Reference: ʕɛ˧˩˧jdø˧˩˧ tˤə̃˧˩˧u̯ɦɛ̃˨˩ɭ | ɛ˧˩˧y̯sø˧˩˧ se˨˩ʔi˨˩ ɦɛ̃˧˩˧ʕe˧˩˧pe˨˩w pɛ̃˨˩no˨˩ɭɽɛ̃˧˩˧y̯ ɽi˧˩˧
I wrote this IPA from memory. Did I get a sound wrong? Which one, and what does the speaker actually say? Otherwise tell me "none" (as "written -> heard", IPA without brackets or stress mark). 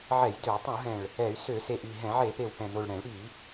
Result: none